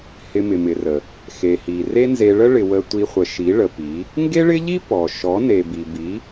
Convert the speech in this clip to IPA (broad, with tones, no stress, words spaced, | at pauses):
hɪ˧mɪ˨mɪ˨rə˨ | xe˨hi˨ re˦nze˧ɭə˦ ɭɪ˨ wə˧ tʷi˧χʷə˨ ʃi˨˦ɭə˨pi˨˦ | ŋɡe˦ɭɪ˦ʎi˦ pɔ˨ ʃɔ˨˦ne˨ bi˨bi˨˦